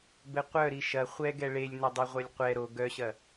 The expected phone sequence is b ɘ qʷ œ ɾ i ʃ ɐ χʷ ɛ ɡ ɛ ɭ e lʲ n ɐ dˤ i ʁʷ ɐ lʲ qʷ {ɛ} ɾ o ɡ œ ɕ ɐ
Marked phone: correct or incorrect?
correct